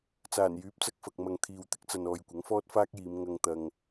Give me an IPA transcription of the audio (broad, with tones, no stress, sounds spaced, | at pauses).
t͡s aː˨˩ n j yː˨˥ p̚ t͡s ɐ˧ k̚ f ɐ˨ k̚ m ɐ˨ ŋ t̪ʰ iː˨ w t̪ ɪ˧ k̚ t͡s ɐ˨ n ɔː˨ j kʷ ɐ˨˥ ŋ f ɔː˥ t̚ f aː˥ k̚ j iː˨˧ m ŋ ɐ˧ ŋ t̪ ɐ˧ ŋ